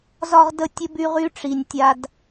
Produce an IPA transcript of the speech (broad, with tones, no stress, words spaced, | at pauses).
zɒ˦ʁ də˦tʲə˦by˦ ʁy˧ʈ͡ʂi˨nʲ tʲa˧d